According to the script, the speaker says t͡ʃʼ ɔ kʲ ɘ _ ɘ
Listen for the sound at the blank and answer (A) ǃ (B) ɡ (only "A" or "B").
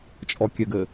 B